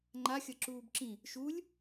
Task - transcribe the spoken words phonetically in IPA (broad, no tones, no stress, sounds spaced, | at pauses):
ŋ͡ǃ a xʲ ʌ ǁ uː b ǁ ĩ | ʃ u lʲ